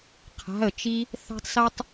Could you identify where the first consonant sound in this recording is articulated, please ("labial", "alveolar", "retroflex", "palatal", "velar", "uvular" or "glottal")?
uvular